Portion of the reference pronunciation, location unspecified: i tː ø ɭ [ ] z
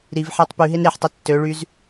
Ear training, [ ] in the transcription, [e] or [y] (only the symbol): y